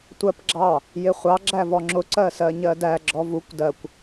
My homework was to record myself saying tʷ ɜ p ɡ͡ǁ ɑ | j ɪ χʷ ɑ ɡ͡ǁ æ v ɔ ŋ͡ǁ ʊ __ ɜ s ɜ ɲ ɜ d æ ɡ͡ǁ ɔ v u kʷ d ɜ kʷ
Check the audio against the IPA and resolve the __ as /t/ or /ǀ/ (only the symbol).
ǀ